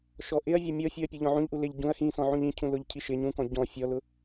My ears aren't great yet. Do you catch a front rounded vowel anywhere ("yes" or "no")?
no